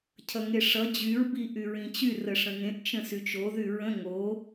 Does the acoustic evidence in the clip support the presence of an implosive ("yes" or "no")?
no